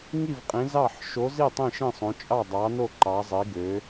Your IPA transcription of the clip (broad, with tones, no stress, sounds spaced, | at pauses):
ŋ i˥˩ v qʼ ĩ˨˥ z ɑ˥˩ ħ ʃ o˨˥ z i˥˩ tˤ ĩ˥˩ ʃ ĩ˥˩ sˤ õ˨˥ t͡ʃʼ ɑ˥˩ dˤ ɑ˨˥ n o˥˩ ǃ ɑ˨˥ zˤ i˨˥ ɡ ø˨˥